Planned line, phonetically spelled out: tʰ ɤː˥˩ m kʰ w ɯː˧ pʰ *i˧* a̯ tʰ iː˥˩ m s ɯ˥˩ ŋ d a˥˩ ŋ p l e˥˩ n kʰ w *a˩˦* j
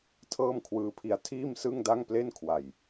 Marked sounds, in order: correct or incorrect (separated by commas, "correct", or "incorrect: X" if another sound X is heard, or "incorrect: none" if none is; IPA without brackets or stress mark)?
correct, incorrect: a˨˩